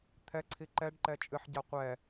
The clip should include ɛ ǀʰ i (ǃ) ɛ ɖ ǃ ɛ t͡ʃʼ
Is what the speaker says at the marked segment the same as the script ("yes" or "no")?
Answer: yes